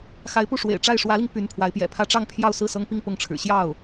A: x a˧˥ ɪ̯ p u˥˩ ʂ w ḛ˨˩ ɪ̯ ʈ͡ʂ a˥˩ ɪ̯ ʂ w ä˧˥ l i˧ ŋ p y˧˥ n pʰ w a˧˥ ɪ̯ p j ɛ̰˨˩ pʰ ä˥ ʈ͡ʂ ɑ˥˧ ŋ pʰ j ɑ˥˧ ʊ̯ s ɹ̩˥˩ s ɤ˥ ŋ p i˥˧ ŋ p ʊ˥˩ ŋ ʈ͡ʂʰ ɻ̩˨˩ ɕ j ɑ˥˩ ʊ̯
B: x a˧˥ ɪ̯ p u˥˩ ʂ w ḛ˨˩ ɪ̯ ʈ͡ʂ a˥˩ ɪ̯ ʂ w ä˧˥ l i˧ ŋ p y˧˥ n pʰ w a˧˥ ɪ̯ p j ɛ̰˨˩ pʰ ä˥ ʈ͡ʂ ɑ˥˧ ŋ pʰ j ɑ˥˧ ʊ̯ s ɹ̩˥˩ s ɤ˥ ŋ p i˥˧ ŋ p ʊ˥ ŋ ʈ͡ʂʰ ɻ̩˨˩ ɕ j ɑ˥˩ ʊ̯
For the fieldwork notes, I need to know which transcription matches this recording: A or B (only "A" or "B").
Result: A